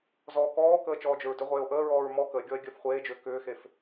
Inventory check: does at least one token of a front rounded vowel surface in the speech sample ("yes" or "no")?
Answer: yes